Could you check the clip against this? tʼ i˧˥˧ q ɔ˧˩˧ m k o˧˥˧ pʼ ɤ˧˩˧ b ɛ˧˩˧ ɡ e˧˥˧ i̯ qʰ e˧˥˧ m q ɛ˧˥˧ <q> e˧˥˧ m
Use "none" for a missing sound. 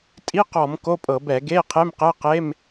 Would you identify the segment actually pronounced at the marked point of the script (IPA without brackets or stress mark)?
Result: q